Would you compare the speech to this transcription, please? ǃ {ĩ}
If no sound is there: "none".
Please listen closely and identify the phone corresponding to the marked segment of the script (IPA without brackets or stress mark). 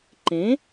ẽ